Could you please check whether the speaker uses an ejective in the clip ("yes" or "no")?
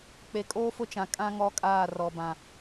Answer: yes